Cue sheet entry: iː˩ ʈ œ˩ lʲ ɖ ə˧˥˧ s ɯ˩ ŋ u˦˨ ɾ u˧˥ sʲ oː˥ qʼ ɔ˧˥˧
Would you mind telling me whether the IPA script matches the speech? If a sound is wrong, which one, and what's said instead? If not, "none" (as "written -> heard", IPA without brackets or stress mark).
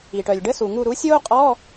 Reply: ɯ˩ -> u˩